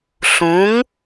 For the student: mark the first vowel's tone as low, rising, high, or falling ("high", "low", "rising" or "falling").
rising